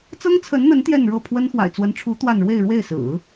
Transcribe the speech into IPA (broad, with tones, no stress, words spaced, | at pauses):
t͡sɤ˥ŋt͡sʰə˧˥nn̪ə˧˥n t̪jɛ˥˧n ɻɤ˥˩pʰwə˥n xwa̰˨˩ɪ̯t͡swə˧˥nʈ͡ʂʰu˧˥ t̪wa˥˧n ɻwe˥˧ɪ̯ɻwe˥˩ɪ̯sɹ̩˨˩˦